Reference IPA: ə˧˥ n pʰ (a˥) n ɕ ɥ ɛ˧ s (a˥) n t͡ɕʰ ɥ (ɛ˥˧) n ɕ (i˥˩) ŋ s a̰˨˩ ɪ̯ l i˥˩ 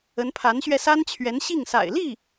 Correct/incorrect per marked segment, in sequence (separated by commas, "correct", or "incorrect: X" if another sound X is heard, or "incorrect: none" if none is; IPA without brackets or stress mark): incorrect: a˧˥, correct, incorrect: ɛ˧˥, correct